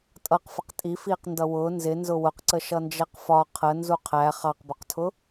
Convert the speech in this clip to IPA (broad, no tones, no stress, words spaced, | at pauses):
tʼʌqfəq tʼi fiːqndʌwʊː nzɪ nzʊwʊqǀə ʃʌnd͡ʒɛqfɒ qʰə nzuqʰæ χɑqbʊqtʰʊ